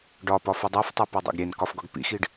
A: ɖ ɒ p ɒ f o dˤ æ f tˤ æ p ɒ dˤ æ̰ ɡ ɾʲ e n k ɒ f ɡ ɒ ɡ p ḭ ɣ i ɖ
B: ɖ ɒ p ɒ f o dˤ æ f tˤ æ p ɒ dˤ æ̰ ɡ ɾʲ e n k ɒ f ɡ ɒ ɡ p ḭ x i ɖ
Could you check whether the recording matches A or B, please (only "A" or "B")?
B